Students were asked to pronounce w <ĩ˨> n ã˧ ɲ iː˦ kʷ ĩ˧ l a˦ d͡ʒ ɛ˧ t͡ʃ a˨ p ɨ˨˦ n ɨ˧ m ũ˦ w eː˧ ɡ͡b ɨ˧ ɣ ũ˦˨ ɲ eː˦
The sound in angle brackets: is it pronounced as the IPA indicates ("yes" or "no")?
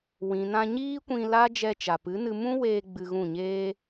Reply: yes